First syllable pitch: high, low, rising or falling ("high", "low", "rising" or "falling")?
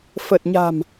low